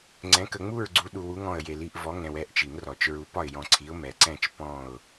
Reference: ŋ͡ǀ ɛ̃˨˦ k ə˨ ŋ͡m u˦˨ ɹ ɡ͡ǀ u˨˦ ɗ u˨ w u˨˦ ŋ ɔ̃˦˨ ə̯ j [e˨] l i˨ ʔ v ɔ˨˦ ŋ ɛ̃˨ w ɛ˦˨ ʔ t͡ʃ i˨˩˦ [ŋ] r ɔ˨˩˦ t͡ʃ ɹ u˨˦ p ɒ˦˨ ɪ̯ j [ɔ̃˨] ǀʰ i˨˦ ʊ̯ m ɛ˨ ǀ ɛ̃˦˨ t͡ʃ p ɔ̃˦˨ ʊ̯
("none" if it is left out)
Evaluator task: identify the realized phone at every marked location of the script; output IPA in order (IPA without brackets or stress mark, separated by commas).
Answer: e˨, ŋ, ɔ̃˨